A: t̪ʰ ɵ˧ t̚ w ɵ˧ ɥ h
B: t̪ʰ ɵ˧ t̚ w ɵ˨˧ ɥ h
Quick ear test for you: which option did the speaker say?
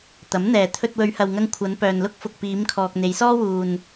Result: B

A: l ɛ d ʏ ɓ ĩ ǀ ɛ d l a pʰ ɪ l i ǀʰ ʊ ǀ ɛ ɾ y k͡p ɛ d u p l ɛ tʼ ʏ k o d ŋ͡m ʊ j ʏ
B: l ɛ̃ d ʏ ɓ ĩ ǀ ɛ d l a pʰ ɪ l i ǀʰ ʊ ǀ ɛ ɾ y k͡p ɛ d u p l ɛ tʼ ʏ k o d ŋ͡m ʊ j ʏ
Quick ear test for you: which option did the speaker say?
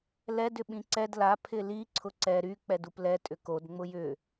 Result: A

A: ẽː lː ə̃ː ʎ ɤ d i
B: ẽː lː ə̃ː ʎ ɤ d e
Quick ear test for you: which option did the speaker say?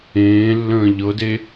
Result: B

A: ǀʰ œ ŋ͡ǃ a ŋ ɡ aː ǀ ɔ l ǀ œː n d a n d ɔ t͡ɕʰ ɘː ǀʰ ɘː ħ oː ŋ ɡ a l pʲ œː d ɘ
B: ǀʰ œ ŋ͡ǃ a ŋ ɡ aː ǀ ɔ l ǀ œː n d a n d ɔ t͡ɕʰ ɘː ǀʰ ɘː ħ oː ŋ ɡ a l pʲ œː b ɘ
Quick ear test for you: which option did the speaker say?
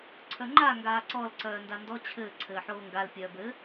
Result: B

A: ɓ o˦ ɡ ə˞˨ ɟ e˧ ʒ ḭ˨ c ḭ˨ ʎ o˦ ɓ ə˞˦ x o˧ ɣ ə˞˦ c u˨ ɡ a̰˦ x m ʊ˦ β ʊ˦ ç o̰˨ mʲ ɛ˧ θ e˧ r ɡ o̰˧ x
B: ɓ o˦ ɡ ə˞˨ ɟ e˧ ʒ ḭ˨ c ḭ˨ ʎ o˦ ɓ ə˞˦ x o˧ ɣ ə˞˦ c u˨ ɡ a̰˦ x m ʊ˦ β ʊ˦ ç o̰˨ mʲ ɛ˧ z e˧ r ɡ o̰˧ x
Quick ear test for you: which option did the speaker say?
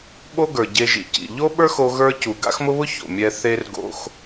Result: A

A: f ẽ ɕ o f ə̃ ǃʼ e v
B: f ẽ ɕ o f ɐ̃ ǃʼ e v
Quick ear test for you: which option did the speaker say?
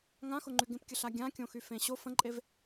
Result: A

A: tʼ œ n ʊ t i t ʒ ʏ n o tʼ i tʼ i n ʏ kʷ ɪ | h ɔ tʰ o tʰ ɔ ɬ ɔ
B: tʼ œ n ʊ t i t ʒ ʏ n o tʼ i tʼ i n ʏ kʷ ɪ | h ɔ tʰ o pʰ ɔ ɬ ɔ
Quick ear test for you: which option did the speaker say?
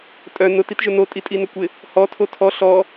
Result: A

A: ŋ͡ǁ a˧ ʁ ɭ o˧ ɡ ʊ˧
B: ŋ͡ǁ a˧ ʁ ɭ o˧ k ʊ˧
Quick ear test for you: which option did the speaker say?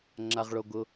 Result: A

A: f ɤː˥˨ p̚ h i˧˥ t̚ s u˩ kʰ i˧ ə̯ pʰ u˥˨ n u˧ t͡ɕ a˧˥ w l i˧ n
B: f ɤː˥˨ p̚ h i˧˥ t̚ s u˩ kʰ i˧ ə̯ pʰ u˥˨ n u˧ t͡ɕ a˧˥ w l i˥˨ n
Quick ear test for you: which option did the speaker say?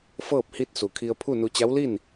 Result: B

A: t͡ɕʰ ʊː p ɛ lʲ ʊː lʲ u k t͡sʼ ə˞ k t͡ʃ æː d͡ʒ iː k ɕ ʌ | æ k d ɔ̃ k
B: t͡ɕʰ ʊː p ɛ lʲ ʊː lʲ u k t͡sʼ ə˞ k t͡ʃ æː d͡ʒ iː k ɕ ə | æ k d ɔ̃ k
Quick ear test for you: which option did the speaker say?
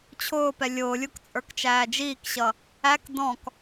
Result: A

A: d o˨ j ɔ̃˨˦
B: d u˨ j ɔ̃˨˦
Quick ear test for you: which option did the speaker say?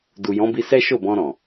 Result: B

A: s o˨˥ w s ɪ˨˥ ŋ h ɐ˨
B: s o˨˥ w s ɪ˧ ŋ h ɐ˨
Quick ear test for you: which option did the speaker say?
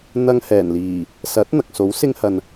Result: B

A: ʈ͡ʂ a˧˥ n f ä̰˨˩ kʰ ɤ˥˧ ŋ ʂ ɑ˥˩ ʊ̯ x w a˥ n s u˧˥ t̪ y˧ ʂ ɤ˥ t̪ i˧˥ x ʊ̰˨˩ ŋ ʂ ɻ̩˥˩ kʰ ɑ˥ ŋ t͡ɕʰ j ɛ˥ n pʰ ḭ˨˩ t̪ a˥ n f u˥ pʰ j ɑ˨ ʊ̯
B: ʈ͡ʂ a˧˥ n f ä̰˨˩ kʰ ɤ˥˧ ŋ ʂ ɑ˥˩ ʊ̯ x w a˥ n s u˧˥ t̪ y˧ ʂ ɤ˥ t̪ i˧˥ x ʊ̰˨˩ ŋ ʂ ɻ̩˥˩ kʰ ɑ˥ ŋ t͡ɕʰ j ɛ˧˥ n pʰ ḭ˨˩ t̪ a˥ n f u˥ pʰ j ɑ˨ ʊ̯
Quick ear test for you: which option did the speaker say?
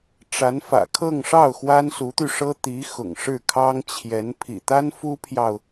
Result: B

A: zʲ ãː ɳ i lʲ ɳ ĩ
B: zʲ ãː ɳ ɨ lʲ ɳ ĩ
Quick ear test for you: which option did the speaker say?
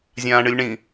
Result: B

